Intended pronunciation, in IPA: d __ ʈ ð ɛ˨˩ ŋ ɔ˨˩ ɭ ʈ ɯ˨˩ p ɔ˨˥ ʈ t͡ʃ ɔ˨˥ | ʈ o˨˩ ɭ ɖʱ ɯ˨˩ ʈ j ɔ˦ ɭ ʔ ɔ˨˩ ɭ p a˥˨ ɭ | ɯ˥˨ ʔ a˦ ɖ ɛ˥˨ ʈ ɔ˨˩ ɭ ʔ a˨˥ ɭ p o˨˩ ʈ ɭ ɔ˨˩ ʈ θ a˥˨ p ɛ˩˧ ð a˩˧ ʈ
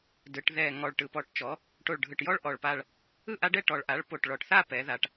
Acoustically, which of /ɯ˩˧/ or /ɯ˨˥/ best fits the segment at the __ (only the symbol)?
ɯ˩˧